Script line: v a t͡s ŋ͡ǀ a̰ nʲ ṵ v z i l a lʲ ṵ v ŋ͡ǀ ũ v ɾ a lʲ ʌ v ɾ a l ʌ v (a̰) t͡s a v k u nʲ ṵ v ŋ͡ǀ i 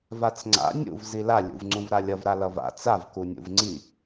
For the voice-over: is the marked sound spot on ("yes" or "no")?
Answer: yes